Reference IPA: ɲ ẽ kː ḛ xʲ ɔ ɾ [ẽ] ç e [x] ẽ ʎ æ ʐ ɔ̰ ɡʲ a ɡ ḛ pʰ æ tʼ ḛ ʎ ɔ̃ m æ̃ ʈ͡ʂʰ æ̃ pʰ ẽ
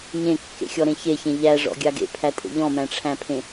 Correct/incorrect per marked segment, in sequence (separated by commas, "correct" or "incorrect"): correct, incorrect